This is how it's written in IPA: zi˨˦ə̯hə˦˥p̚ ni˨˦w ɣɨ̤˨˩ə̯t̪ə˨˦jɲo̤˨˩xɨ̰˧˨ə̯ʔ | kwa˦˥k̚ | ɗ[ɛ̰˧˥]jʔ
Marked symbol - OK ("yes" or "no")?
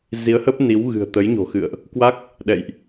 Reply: no